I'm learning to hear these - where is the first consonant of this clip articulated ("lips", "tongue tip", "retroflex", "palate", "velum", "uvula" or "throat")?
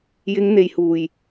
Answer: palate